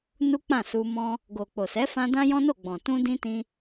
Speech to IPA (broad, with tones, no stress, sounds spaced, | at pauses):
n u˦ k͡p ã˦˨ s u˧ m ɔ̃˦ | ɡ o˨ k͡p o˨ s ɛ˨˦ f ã˧ d ã˦ j ɔ̃˦ n o˦˨ ɡ͡b ɔ̃˨ t ũ˧ d ĩ˧ t ĩ˧